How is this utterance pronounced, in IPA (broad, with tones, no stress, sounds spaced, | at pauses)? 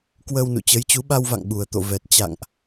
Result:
k w əː˧ w n ṵ˧˨ t͡ɕ ə˨˦ j t͡ɕ u˨˦ ɓ a˧ w v a̰˧˨ ŋ ɓ u˨˩ ə̯ t̪ o̰˧˨ v ɛ˨˩ t̚ t͡ɕ a̰˧˨ ŋ ʔ